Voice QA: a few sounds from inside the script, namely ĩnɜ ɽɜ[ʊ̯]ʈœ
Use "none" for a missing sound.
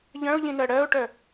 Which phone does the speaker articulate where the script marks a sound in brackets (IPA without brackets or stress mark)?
ʊ̯